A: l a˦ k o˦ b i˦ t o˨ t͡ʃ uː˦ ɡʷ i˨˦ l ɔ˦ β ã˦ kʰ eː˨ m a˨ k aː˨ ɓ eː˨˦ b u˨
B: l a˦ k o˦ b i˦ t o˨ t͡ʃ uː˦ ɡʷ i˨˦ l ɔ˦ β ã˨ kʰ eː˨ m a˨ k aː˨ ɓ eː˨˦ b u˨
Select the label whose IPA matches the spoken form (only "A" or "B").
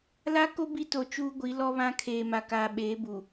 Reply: A